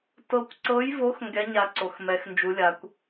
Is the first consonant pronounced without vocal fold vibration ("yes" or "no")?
yes